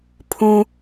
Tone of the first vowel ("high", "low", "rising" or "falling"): high